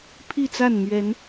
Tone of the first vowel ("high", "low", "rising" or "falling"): falling